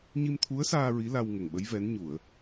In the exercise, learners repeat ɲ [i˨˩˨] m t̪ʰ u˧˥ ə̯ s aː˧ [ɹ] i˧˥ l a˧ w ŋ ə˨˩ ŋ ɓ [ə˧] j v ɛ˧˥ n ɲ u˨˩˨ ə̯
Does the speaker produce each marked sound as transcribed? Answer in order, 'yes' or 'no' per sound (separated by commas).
no, yes, no